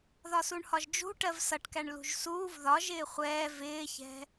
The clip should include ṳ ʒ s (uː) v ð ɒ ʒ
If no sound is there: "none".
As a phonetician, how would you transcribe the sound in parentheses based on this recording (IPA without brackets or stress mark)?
uː